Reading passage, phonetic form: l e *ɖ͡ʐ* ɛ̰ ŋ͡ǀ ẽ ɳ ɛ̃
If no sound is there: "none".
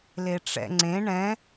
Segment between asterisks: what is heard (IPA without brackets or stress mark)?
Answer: ʈ͡ʂ